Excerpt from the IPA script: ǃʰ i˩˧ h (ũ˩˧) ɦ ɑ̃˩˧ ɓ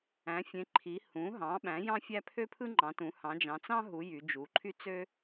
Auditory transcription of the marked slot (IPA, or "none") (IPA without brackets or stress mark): ũ˩˧